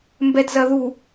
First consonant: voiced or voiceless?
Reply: voiced